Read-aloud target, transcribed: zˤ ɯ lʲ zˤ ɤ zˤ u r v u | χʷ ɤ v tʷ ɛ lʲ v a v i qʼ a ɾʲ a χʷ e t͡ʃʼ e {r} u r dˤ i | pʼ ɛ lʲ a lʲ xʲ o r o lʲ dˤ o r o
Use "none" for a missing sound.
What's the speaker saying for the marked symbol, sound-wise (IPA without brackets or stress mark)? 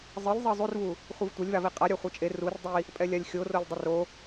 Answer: r